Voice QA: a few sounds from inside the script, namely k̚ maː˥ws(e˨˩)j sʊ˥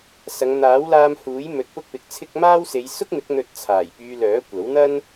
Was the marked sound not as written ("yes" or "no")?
yes